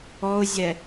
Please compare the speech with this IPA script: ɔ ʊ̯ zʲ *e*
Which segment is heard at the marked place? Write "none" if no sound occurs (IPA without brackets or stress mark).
ɛ